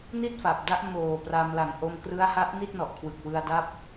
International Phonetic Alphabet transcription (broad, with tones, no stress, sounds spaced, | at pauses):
n i˥˩ t̚ f a˨˩ p̚ d a˦˥ ʔ m oː˨˩ p r a˧ m l a˨˩ ŋ ʔ o˧ m k r ɯ˦˥ a̯ h a˦˥ ʔ n i˥˩ t̚ n ɔ˨˩ ʔ kʰ w ɯ˨˩ k̚ w ɯ˧ a̯ d a˦˥ p̚